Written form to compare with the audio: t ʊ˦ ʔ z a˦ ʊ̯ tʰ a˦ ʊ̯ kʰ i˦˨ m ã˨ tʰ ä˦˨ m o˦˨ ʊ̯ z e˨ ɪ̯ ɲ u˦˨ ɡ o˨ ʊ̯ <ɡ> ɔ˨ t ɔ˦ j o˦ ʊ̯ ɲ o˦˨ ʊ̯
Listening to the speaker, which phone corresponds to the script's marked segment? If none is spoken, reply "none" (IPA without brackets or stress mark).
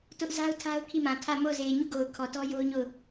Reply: kʰ